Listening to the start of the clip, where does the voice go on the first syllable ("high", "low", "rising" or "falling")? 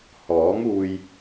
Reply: rising